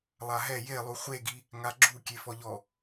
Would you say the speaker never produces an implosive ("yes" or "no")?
yes